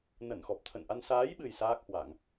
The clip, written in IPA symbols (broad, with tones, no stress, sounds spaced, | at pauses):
n ə˧˩ n x ɔ˨˩ p̚ t̪ʰ ə̰˧˨ n ʔ a˧ n s aː˨˦ j ɓ ɨ˨˩ j s aː˦˥ k̚ h w a˧˩˨ ŋ